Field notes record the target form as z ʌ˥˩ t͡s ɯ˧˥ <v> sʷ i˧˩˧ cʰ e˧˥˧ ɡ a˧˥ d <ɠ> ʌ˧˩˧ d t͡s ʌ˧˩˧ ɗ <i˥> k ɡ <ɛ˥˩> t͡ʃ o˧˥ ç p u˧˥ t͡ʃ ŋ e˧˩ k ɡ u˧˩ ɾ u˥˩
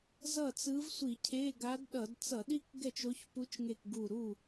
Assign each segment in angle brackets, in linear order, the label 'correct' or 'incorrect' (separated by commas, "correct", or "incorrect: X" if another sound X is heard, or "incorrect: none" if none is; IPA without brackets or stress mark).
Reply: correct, incorrect: ɗ, correct, correct